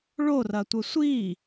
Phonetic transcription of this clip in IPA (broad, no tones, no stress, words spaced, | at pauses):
ɭorɐtʷə sʷi